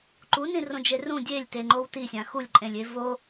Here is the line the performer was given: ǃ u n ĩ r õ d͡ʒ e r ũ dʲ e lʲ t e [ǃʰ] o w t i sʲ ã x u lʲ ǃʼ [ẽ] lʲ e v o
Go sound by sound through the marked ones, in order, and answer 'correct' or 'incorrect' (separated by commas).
incorrect, correct